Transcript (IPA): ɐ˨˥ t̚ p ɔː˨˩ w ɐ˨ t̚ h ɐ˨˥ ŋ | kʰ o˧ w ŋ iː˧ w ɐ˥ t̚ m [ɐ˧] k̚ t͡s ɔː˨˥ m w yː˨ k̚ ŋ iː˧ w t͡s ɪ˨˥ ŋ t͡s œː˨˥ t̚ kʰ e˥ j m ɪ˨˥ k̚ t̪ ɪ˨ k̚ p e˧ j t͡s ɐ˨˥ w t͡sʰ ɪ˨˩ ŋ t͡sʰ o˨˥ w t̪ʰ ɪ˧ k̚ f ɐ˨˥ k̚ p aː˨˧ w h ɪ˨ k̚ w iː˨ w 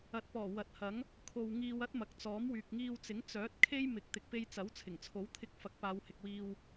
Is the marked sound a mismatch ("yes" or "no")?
yes